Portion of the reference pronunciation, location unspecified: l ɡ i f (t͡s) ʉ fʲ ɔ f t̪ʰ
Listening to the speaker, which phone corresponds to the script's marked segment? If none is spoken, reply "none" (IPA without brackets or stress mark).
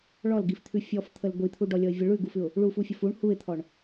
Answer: t̪ʰ